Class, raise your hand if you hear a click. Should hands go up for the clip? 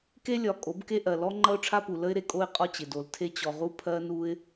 yes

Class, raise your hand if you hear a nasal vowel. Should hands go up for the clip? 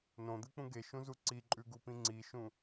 yes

